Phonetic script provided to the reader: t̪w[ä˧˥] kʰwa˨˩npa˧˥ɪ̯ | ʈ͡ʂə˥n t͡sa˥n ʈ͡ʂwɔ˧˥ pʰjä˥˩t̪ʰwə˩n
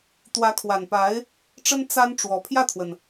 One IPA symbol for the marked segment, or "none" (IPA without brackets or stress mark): ä˧˥